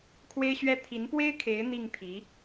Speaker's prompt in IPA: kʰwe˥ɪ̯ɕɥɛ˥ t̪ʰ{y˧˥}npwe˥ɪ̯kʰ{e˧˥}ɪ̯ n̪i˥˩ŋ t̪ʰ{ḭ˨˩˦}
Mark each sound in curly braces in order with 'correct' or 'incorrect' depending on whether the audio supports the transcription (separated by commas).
incorrect, correct, incorrect